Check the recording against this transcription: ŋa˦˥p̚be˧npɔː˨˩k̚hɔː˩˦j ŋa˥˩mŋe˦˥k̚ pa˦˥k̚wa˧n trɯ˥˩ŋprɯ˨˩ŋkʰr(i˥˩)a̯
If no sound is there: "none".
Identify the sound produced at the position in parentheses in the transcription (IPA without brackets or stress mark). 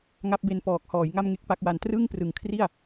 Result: i˥˩